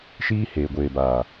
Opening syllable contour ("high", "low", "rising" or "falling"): high